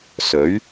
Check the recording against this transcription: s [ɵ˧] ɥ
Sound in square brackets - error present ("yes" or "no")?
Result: yes